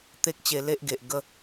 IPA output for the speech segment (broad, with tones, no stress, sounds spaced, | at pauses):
t̪ e˦ k̚ t͡ɕ e˧ l e˦ ʔ ɡ e˨ ʔ ɡ ə˥˧